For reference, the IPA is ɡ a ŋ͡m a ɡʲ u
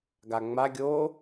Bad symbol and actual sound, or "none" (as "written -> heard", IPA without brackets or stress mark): u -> o